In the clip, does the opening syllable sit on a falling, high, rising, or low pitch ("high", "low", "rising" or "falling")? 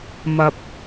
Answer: low